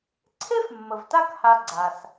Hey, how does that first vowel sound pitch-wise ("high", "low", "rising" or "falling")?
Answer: high